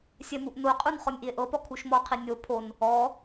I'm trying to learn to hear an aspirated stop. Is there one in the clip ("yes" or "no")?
yes